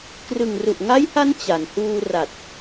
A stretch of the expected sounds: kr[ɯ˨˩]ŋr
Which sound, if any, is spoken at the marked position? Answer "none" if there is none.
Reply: ɯ˨˩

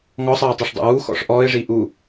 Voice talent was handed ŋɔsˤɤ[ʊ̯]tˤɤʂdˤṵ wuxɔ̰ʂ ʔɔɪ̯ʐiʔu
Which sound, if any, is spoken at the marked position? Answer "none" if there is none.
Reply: ʊ̯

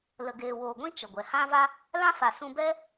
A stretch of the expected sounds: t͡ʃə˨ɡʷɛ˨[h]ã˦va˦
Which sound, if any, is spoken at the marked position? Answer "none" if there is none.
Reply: h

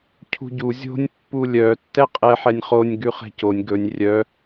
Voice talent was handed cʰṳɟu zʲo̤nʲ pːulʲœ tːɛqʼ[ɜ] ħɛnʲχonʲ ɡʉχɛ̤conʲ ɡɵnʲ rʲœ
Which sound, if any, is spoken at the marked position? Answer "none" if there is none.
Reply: ɛ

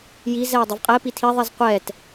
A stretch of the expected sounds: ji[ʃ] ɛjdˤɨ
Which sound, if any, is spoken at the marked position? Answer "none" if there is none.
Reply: z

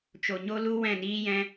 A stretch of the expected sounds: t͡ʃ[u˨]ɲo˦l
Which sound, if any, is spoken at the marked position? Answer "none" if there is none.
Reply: o˨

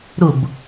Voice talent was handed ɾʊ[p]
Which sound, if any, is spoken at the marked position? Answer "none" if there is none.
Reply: b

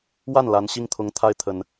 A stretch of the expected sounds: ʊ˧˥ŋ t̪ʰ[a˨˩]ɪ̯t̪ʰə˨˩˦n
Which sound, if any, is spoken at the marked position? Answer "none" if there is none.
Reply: a˥˩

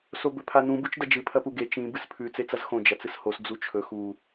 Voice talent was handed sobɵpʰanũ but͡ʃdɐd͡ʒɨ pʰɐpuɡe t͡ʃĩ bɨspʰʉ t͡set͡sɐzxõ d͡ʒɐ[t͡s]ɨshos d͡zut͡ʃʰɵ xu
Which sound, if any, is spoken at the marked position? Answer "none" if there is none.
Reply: t͡s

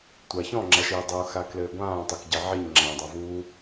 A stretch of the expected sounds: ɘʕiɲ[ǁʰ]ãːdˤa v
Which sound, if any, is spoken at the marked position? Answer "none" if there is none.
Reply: ŋ͡ǁ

